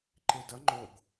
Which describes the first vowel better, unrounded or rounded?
unrounded